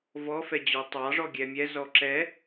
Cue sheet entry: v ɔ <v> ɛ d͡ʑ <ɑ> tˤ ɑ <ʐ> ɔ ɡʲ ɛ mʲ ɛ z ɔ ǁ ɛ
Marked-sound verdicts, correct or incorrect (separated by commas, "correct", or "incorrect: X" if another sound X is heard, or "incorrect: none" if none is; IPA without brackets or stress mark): incorrect: f, incorrect: ɔ, correct